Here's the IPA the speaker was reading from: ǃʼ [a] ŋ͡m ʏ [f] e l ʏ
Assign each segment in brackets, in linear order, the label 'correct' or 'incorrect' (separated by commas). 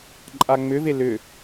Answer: correct, incorrect